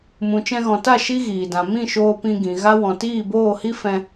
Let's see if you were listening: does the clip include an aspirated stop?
no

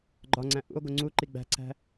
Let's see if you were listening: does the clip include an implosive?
no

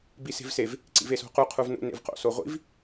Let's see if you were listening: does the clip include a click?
yes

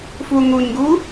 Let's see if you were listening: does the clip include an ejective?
no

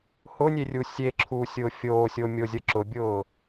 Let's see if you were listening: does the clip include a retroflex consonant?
no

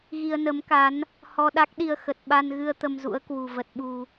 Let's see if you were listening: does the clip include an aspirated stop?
no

